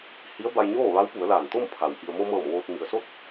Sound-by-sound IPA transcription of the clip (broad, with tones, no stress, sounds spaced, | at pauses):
h i˧˥ ə̯ b a˧ j ɲ oː˥˨ ʋ a˧˥ w p u˩˧ ə̯ l aː˧˩ n t̪ o˥˨ m pʰ a˩ w ʔ i˩ ə̯ m o˧ m ɤː˧˩ m ʋ oː˧ t̚ m i˩ ə̯ s o˥˨ t̚